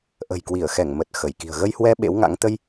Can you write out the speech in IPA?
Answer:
ʔ ə̤˨˩ j k w i˧˩ ə̯ x ɛ˧˩ ŋ m ə˨˩ t̚ x ə˧˩ j k i̤˨˩ ə̯ ɣ ə˧ j h w ɛ˧ ɓ ḛ˧˥ w ŋ a̰˧˥ ŋ t̪ ə˧ j

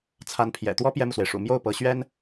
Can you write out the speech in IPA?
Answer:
t͡sʰ a˧˥ n pʰ j ɛ̰˨˩ t̪ w ɔ˥ p j ɛ˥ m u˨ s w e˩ ɪ̯ ʂ ṵ˨˩ m j o˥˩ ʊ̯ p ɤ˧˥ ɕ ɥ ɛ˥ n

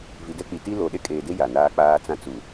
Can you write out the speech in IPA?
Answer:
v i˨ d ɛ˦ k͡p i˨ t i˦ l o˨ ɗ e˦ kʼ eː˨ d e˦ j a˨ n aː˦ k͡p aː˦ t͡s ã˦ t͡s u˨

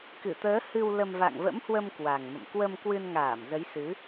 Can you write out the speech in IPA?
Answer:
k ɨ˧˩ t̪ əː˨˦ h ɨ˧ w l ə˧ m v a̰˧˨ ŋ v ə̰˧˥ m h w ə˧ m k w a˨˩ ŋ m ə̰˧˨ m k w ə˧ m k w ɨ˧ n ŋ aː˧˩ m z ə˨˦ j s ɨ˨˦

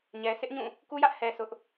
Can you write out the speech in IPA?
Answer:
ɲ ɛ˨ s ɪ˦ ʔ ɲ ũ˦˨ | k u˦ j ä˦ ʔ h ɛ˨ s ʊ˦ ʔ

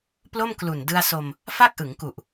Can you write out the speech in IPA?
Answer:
p l o˥˩ m k l u˨˩ n d ɯ˧ a̯ s o˧ m | f a˥˩ k̚ ʔ ɯ˩˦ ŋ k u˨˩ ʔ

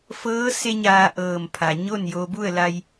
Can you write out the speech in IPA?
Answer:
f ɤː˧˥ s e˧ ɲ aː˧ ʔ ɤː˧˩ m pʰ a˩ ɲ o˥˨ n j o˧ b u˥˨ ə̯ l a˧ j

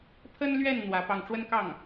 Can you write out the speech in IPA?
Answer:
pʰ ə˥ n l ɥ ɛ˥˩ n n̪ w ä˧˥ p ɑ˥˩ ŋ ʈ͡ʂ w ə˥ n k ɑ˥˩ ŋ

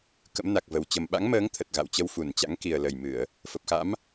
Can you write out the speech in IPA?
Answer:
k ə̰˧˥ m n a˨˩ k̚ v ə˨˩ w t͡ɕ ə˨˩ m ɓ a̰˧˥ ŋ m əː˨˦ ŋ t̪ʰ ə˨˩ t̚ ɣ a̰˧˨ w t͡ɕ ə˧ w f u˧˩ n t͡ɕ a̰˧˥ ŋ k i˨˩ ə̯ l ə˨˩ j m ɨ˧˩˨ ə̯ | f ə˨˩ p̚ x a̰˧˥ m

